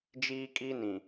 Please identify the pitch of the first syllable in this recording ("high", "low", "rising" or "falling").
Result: high